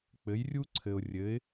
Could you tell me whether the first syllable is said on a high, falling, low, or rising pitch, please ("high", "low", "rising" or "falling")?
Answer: rising